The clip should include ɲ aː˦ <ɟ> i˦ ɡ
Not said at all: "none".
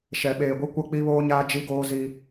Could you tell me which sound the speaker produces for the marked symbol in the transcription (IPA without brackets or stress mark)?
d͡ʒ